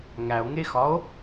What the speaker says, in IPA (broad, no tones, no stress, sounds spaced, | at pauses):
ŋ æ o̯ ŋ e x ɒ o̯